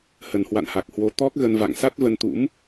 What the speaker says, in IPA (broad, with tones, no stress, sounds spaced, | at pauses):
h ə˨˩ n h w a̰˧˨ n h a˨˩ k̚ h w o˨˦ t̪ ɔ˦˥ k̚ ɣ ə˧ n v a̰˧˨ ŋ s a˦˥ t̚ v ə˧ n t̪ ṵ˧˥ m